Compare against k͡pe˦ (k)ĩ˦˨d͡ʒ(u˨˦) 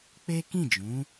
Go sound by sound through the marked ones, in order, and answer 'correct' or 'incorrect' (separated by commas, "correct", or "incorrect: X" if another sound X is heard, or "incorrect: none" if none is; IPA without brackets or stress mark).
correct, incorrect: ũ˨˦